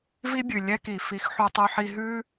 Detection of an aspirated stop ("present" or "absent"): absent